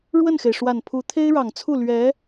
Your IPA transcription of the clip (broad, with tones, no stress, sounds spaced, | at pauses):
ɻ w ə˥˩ n x e˩ ɪ̯ ʂ w a˨˩ n pʰ u˧˥ t̪ʰ e˥ ɪ̯ ɻ ɑ˨˩ ŋ t͡sʰ u˥˩ l ɥ ɛ˧˥